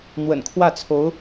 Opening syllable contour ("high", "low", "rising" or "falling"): low